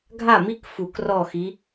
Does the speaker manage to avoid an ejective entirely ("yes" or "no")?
yes